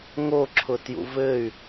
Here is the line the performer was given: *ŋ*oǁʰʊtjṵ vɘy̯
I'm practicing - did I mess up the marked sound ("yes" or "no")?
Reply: no